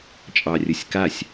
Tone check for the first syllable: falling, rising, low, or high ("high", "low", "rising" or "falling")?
low